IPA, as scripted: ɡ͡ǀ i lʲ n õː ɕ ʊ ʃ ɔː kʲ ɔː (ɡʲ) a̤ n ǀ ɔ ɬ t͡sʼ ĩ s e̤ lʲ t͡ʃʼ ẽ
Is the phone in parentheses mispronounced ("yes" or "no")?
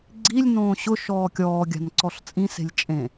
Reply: no